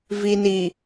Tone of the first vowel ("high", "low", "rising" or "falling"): low